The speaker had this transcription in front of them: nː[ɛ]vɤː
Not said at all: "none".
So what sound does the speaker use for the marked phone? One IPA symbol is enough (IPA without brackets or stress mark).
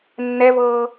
ɛ